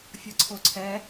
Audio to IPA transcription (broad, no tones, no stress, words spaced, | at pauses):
fʲʌǀʰoǀʰɛ